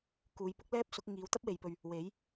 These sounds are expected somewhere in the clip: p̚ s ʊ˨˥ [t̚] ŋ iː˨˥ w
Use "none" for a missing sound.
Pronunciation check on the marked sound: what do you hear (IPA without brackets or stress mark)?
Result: k̚